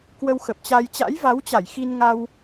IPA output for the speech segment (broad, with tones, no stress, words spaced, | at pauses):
kwə˧wxə˨˩p̚t͡ɕa˧j t͡ɕa̰˧˥jva˨˦wt͡ɕa˧˩j xi˧n ŋa˧w